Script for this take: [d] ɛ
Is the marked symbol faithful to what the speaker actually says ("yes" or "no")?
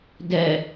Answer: yes